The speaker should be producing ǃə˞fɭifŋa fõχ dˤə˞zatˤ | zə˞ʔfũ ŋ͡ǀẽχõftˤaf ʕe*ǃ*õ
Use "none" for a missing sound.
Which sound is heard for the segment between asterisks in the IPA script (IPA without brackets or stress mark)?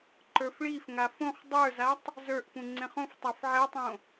tˤ